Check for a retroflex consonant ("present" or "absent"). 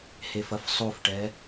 present